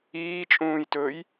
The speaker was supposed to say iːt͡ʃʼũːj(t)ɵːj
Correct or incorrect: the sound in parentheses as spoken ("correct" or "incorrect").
correct